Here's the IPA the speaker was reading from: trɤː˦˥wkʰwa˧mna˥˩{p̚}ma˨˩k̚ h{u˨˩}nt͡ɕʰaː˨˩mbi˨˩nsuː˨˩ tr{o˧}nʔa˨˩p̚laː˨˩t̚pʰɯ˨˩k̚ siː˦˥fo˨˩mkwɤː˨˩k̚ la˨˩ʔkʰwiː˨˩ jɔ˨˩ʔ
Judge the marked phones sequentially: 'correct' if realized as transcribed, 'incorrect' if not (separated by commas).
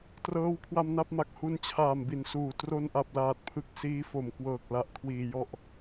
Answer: correct, incorrect, correct